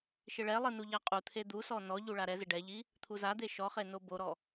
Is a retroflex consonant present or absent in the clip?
present